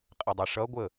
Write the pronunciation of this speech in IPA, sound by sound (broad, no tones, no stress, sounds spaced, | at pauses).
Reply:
qʼ ɪ dˤ i ʂ ʌ ɡʷ ə